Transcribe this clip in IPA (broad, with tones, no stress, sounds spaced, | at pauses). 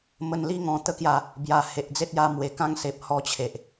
m ə˨˩ n l i˧ ŋ ɔ̃˨˩ t̪ ə˧ k j a˨˩ | b j a˨˩ h e˨ ʔ d͡z e˦ t̚ j a˧ m w e˨˩ k ã˦ ŋ s e˨ p̚ h ɔ˧ t͡ɕʰ e˨ ʔ